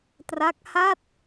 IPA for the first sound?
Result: t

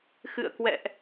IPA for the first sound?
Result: x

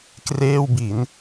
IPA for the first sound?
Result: k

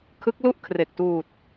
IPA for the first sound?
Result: kʰ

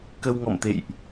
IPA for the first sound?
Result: k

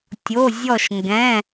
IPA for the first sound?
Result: tʲ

